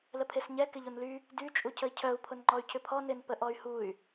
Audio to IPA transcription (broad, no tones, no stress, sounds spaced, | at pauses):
l ə pʰ e s ɲ ɛ k ɪ ʎ o n l y | d y t͡ʃʼ u cʰ ə i̯ cʰ œ u̯ pʰ ʊ n ŋ͡ǃ ɔ y̯ cʰ ʏ pʰ ɔ n ɪ n p ə ʔ ɔ y̯ h u y̯